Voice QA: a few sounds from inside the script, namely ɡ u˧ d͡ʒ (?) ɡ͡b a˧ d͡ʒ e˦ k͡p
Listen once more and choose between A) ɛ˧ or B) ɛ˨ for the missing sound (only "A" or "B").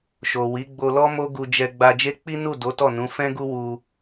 A